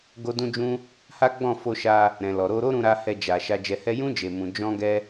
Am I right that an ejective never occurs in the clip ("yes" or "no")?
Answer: yes